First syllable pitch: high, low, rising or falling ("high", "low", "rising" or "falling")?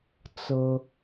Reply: high